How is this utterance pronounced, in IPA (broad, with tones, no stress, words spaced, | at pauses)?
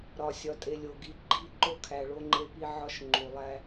ɾɒ˨sʲɒ˨tʼe˨lʲo˨ ɡi˨˦ ɡ͡ǃi˦˨ǃo˦kʰæ˨ ɭo˦ŋ͡ǃe˦pi˦ ʕɒ˦ʃŋ͡ǃu˨lˠæ˦